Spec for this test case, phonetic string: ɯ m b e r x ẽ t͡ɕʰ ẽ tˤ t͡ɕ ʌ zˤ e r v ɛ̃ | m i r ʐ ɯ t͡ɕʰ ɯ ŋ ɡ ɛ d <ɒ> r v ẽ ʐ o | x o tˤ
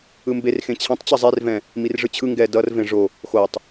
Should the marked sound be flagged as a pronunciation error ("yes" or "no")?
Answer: yes